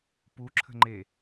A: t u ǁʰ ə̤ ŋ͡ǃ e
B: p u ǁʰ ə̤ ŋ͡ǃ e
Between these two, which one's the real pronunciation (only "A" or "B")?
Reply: B